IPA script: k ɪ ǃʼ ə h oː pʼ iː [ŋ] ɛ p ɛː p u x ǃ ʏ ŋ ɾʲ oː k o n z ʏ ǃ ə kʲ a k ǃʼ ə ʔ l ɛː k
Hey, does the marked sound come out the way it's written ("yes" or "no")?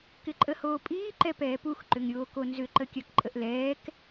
no